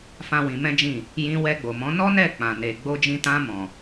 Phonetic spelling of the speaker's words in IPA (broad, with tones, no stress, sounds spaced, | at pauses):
f ã˦ w ĩ˧ m ɛ̃˦ d͡ʒ ĩ˦˨ | j ĩ˧ w ɛ˧ ɡ͡b o˨ m ɔ̃˨˦ n ɔ˦ n ɛ˦˨ k͡p ã˨ n e˨ ɡ͡b o˧ d͡ʒ ĩ˧ t ã˧ m ɔ̃˨